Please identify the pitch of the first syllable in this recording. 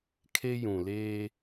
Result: high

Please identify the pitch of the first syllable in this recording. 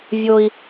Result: high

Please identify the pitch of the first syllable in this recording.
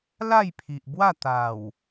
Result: falling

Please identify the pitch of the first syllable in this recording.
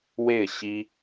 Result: falling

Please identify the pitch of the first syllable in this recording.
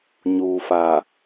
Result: low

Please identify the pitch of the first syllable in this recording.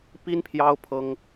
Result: high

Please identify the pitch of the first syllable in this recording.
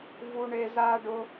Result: high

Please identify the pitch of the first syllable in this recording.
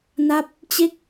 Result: falling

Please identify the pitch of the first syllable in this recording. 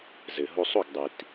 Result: low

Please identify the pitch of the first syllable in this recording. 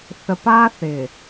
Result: low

